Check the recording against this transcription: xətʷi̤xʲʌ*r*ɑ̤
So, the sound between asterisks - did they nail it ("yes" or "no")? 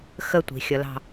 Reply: no